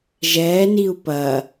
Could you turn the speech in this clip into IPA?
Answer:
ʒ ɛː n i u̯ p ɐ

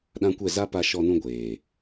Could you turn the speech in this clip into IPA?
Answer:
ɗ ã˦ kʷ ɛ˦˨ z a˦ p a˧ ʃ ɔ˧ n ũ˧ ɡʷ eː˨

